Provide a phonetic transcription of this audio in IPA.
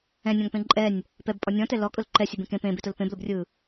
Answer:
ɛ̃ nʲ ɔ̃ ŋ p ẽ ǃʼ ɛ nʲ | p ɛ b pʼ ɔ nʲ ɔ̃ t ɛ l ɔ kʼ ʊ l ǃ ɛ sʲ e b ẽ k ẽ p ẽ b e t ʊ l p ẽ b l ʊ b rʲ ɯ

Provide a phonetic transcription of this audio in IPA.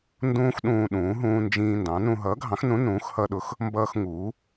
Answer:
n d ũː˦ x ɗ ũː˦ ɗ ũː˨˥ ɦ ũː˦ n d͡ʒ ĩː˦ n d ɑ̃˨˥ n ũ˦ ɦ ʌː˨˥ ɡʱ ɑ̃˨˥ x n ũ˨˥ n ũː˨˥ x h ʌ˦ ɗ ʊ˨˥ x | m b ʌː˦ x ŋ uː˨˥

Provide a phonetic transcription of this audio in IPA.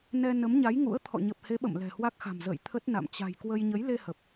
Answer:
n ɛ˧ n ə˨˦ m ɲ a˨˦ j ŋ ṵ˧˥ ə̯ t̪ʰ ɔ̰˧˨ ɲ ə˨˩ p̚ h e˨˦ ɓ ə̰˧˨ m l ɛ̤˨˩ h w a˦˥ k̚ x a̤˨˩ m z ə̰ː˧˨ j t̪ʰ ə˦˥ t̚ n a̰˧˨ m t͡ɕ a̤˨˩ j k w ə˧ j ɲ ə˨˦ j l e˧ h ə˨˩ p̚

